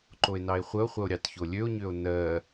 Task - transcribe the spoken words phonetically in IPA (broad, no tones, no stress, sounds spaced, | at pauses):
ǃ o e̯ n ɑ e̯ χʷ ə o̯ χʷ ə o̯ ɾʲ ɑ t ç o lʲ ø o̯ ɲ ø o̯ n ɜ